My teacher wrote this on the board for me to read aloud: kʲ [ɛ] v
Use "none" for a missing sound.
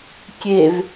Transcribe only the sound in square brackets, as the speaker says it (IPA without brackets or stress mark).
e